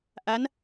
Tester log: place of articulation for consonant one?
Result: glottal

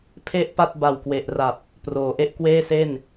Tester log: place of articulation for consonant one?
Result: labial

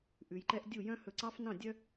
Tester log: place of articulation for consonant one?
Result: glottal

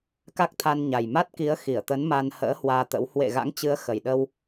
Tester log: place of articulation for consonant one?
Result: velar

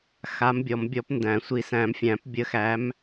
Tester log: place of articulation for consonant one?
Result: velar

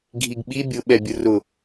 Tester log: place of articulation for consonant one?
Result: velar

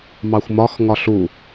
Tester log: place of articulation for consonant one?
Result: labial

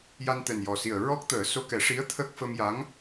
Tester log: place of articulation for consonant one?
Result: palatal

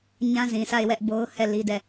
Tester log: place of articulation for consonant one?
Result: palatal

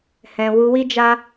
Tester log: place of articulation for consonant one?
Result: glottal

